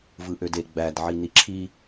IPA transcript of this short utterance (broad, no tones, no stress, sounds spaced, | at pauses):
v ɯ ʔ ø d e ɡ͡b æ d ʕ i n i ǁʰ i